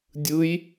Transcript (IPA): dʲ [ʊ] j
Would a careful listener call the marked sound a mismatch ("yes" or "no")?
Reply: yes